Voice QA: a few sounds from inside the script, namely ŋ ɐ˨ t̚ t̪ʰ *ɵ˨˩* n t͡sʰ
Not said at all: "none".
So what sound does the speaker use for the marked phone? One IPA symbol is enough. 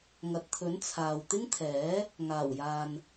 ɵ˨˥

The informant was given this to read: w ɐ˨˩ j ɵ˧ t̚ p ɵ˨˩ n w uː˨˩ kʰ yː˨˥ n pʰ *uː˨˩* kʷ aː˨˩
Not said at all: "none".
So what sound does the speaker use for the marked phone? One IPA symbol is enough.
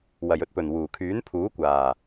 uː˨˥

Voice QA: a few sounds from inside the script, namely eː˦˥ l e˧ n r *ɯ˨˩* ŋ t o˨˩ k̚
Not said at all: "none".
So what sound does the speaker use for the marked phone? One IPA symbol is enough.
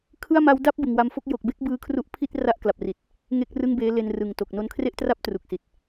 ɯ˨˩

